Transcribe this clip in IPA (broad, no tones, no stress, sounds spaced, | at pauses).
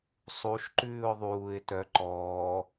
sˤ u ʃ ǃ ʉː ʊ̯ ðˤ uː ɪ̯ t œ ǃ ɔː